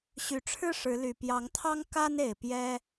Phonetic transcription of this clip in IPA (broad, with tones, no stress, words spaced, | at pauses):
ɕy˨˦ʈ͡ʂʰɻ̩˦ ʂɻ̩˨˦ly˨˩ pjɑ˨˦ŋt̪ʰɑ˦ŋ ka˦ne˨˩ɪ̯ pjɛ˦